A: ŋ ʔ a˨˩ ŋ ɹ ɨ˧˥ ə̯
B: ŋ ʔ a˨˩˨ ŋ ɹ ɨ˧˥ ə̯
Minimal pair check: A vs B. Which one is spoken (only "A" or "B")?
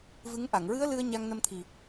B